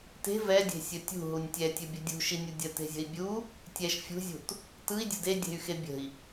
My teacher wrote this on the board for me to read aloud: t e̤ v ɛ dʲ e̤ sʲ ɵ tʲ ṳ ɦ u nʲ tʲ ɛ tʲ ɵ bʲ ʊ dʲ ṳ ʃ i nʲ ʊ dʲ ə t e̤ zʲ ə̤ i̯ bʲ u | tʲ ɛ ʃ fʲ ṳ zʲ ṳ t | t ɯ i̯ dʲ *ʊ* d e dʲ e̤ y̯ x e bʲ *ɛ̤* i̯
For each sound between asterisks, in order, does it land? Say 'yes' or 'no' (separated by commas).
no, no